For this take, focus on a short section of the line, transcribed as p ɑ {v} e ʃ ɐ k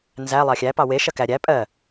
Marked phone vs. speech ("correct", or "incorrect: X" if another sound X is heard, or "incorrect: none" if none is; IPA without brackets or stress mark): incorrect: w